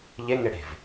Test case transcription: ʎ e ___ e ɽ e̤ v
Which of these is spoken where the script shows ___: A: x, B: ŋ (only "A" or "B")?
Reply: B